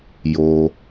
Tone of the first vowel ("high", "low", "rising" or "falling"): low